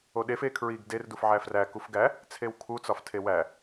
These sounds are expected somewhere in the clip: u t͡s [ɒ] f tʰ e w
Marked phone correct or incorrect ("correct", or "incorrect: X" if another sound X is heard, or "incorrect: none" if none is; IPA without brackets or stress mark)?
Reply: correct